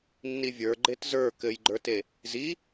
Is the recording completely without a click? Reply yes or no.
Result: no